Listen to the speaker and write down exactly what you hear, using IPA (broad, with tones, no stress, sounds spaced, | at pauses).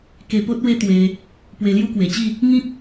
k e˧ p o˦ t̚ w e˦ t̪ w e˧ | p w e˧ l j u˦ k w e˨˩ t͡ɕ i˥˧ | ŋ ĩ˦ k̚